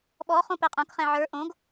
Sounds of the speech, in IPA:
ɓ ɔ χ õ p ɛ qʼ õ k χ ɛ̃ ʕ ə˞ ʔ õ ɡ

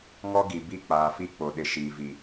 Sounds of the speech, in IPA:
ŋ ɔ˦ ɡ i˨ b i˦˨ k͡p aː˨ f i˦ k͡p o˨ ɗ ɪ˨ ʃ iː˨ v i˨

